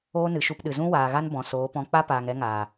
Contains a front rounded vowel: no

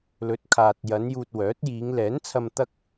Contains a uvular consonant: no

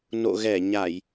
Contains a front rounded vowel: no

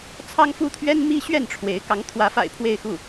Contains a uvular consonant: no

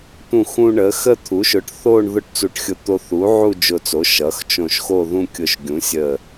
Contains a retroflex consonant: yes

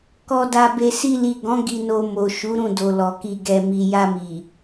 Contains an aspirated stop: no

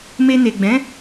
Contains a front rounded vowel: no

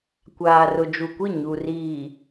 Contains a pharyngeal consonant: no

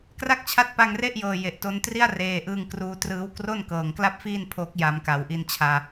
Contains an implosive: no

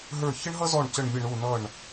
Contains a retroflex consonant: yes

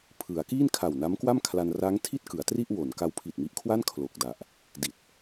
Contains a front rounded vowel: no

